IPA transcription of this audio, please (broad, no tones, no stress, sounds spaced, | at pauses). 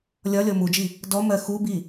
lʲ ɒ lʲ ɔ m u d͡ʒ i | d ɔ m ɜ x u b i